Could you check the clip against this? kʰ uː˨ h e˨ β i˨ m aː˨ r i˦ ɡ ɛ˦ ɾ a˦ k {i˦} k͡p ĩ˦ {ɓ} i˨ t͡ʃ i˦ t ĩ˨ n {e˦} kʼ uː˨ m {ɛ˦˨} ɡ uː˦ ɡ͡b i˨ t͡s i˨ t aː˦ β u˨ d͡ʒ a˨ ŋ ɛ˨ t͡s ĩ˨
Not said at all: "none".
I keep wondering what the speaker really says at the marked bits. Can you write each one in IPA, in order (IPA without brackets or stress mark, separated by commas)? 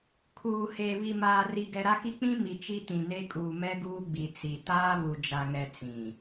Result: i˦, m, e˦, ɛ˦